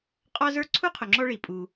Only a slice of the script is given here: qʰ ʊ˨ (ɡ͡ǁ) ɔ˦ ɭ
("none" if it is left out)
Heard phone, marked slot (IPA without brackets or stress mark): ŋ͡ǁ